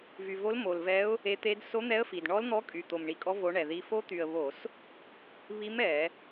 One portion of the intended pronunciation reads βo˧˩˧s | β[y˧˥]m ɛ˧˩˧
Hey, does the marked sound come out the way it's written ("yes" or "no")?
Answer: no